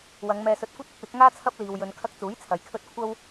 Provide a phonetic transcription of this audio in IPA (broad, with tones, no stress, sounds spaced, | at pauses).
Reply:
w ɐ˨˧ ŋ m ɛː˧ s ɵ˧ t̚ kʷ ɐ˥ t̚ ɪ˨˥ k̚ w ɪ˨˥ k̚ ŋ aː˥ t͡sʰ ɐ˥ p̚ l iː˨ w j ɵ˨˧ n kʰ ɐ˧ k̚ t͡s uː˨˥ j t͡sʰ ɐ˨˧ j kʰ ɵ˥ t̚ kʷʰ ɐ˥ w